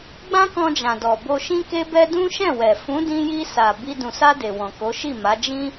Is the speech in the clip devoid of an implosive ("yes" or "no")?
yes